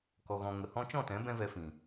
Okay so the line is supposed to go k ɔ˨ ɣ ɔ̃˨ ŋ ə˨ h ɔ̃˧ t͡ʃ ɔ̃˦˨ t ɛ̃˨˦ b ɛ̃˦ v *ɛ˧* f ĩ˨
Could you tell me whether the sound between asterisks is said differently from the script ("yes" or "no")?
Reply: no